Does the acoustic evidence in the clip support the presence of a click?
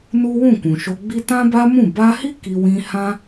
no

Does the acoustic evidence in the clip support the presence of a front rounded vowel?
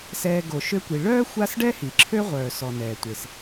yes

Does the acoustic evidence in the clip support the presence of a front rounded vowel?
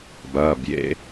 no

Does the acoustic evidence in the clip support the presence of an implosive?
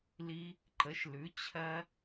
no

